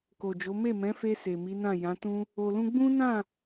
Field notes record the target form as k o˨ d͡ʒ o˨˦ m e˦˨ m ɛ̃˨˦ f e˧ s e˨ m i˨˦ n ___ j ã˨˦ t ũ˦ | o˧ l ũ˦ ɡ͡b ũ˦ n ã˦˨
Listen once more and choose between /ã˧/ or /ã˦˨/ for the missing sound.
ã˦˨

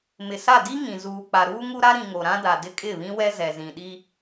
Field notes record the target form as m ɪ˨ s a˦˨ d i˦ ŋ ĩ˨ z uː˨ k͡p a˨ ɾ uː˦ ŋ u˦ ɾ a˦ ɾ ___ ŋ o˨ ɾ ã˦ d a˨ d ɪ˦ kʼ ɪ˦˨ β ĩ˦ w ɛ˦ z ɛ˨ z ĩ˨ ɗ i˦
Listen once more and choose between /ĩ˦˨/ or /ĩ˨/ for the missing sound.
ĩ˨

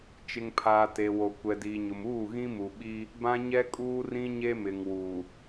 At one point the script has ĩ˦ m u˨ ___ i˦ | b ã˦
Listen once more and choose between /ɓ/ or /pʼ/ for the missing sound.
ɓ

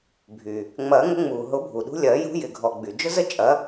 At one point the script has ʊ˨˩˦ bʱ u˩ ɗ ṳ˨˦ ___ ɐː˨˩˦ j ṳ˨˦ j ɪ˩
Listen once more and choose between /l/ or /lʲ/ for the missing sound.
lʲ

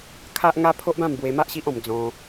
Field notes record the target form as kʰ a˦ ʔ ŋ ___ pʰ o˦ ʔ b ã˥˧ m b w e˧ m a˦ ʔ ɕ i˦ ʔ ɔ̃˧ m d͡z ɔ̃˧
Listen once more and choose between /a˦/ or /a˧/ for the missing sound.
a˦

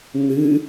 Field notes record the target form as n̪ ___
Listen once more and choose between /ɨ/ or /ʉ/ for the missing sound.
ɨ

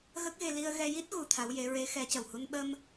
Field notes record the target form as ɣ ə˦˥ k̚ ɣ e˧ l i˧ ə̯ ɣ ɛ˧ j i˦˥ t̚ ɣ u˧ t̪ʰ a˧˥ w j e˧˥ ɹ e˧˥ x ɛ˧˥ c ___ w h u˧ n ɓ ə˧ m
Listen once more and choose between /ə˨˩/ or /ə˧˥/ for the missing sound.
ə˨˩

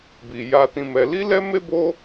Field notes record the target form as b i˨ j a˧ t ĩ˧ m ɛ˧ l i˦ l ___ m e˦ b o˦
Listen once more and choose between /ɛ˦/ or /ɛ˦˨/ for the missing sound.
ɛ˦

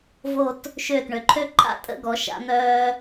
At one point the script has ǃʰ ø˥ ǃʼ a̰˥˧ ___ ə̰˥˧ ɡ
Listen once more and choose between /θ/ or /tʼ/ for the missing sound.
tʼ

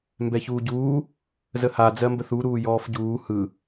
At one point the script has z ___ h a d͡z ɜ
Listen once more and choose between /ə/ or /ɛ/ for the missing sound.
ə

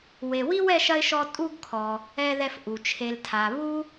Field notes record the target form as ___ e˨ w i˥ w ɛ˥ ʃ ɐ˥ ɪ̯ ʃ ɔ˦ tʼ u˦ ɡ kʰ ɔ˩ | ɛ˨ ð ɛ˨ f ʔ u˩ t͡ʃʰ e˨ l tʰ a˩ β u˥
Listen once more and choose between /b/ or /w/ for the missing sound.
w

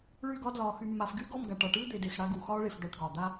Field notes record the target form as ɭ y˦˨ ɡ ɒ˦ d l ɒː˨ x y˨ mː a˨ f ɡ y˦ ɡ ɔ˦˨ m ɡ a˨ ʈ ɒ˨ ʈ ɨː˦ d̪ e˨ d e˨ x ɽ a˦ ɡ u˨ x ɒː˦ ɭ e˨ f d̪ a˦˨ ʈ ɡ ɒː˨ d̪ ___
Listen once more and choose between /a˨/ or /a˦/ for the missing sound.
a˦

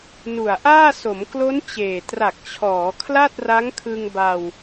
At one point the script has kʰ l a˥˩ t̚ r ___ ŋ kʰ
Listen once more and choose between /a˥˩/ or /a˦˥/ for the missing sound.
a˦˥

